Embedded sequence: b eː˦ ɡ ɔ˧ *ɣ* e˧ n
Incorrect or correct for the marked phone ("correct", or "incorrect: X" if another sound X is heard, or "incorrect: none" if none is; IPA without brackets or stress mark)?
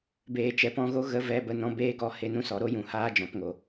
incorrect: h